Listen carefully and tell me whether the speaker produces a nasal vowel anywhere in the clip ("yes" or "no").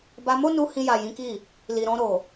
yes